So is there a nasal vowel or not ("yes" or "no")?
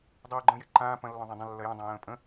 yes